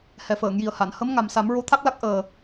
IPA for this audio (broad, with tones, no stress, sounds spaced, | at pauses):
h ɛ˨˩ f əː˨˩˨ ŋ j i˨˩ ə̯ h a˨˩˨ n h ə˧˥ m ŋ a˨˩ m s a˨˩˦ m ɹ o˧˥ t̪ʰ a˦˥ k̚ l a˦˥ k̚ ʔ əː˨˩